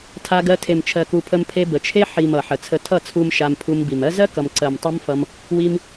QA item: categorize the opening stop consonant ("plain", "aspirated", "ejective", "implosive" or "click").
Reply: aspirated